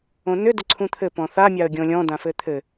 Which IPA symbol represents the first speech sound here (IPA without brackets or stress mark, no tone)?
õ